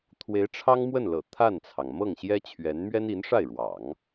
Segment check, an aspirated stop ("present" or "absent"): present